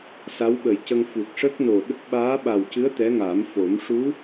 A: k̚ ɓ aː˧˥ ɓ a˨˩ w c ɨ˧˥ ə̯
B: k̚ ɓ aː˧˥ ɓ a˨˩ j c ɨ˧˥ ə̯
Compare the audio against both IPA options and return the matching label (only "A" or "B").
A